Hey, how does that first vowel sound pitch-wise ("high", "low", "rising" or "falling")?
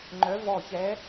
rising